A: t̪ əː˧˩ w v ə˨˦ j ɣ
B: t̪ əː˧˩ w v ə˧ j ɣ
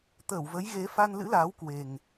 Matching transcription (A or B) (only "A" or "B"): A